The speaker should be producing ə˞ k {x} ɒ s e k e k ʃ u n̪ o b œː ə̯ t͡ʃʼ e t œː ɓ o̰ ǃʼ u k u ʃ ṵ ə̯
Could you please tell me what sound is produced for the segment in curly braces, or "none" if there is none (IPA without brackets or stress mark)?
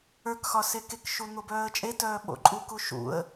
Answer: x